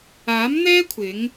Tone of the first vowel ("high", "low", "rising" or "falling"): rising